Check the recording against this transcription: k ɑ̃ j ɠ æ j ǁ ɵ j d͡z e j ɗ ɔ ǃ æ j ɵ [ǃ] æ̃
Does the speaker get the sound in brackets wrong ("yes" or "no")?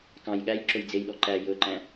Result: no